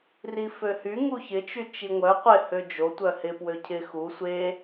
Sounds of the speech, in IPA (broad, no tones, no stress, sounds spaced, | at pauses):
r i f ø h y ŋ u ç ɪ t͡ʃ y t͡ʃ i ŋʷ œ qʷ ɪ h ø d͡ʒ o tʷ œ h ɪ p w ø cʰ ɪ x u sʷ e